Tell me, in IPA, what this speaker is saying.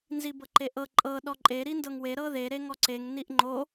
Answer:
nzibɤǃeʔɤ ǃʼɤ ɗɔǃʼe ɾindɤŋwe ɾɤðe ɾeŋɔǀeŋ niʔŋ͡ǃo

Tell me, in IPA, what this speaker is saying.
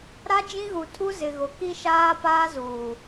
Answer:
ɾa˦ d͡ʒĩ˦ɣu˨ tʰu˦ zɪ˨ɣʊ˨ ki˦ʃaː˦ paː˦zuː˨

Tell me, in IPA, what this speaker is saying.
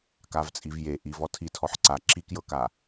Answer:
kavt͡sʼivje ʔiv ɔtʰi tʰɔħǀa ǁikjɤka

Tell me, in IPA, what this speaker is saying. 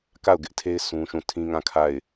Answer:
ka˦˨ʊ̯ɡɪ˦ʔtʰe˦ɪ̯ sũ˦ʃũ˦˨ tʰĩ˦ŋã˦˨ kʰa˦˨ɪ̯

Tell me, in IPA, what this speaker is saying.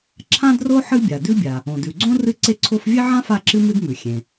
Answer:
ǁʰã˥dro˥ ħɨ˥bʲa˩dʉ˥bʲa˩ | õ˩dʉ˩ɡ͡ǀõ˥ rɨ˥ǀe˥ǀʰo˥f vʲe˥ʕã˥ fa˥ǁɨ˥ mɨ˥dmʉ˩ xʲẽ˩

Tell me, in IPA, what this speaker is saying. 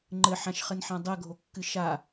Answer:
ŋ͡ǃɘħãʃχɘnħã dˤɜɡʱokːɨ ʃa

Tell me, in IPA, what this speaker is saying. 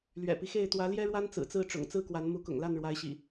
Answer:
lɥɛ̰˨˩pi˦xe˥˨ɪ̯ t̪wä˨˦ljɛ˦ɻwa˦n t͡sɹ̩˨˩t͡sɹ̩˥˨ ʈ͡ʂʊ̰˨˩ŋt͡sɹ̩˥˨kwa˨˦n mu˨˦kʊ̰˨˩ŋla˥˨n ɻwa˨˦ɪ̯ɕḭ˨˩

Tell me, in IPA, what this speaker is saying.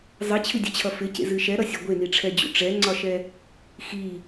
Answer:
zˤit͡ɕʰɨdʲet͡ɕʰʌ fɪcḛzɨ ʃɛɾʌsʲɒ ɡʷeniʈ͡ʂʰɛd͡ʑṵ ʈ͡ʂɛŋ͡ǀɒʃɛ | xi

